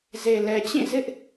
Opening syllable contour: low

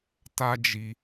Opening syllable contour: high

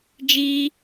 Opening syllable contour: high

